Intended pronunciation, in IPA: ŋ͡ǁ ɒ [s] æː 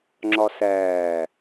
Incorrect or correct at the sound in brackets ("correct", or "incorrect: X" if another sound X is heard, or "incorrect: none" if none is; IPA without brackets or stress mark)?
correct